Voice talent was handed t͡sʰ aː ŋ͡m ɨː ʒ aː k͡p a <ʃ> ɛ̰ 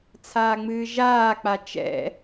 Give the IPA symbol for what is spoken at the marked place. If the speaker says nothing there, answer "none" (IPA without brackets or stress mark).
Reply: t͡ʃ